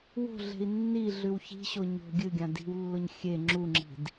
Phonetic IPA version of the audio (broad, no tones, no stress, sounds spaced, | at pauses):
w o̤ ɮ e̤ i̯ nː i ɮ ʉ w ç i̤ ɕ o ɲ o̤ ɡʲ ɨ ɡʲ ã d i̤ w lː o ɲ xʲ e ŋ͡ǁ u ŋ͡ǁ i̤ d